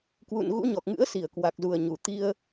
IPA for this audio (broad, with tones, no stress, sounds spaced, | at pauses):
k w ṵ˧˨ n ɣ ṵ˧˥ ɲ ɔ˨˩ k̚ ŋ ɨ̰˧˥ ə̯ s i˧˩ ə̯ k w a˨˩ k̚ z u˨˩ ə̯ ɲ u˨˩ t̪ i˧ ə̯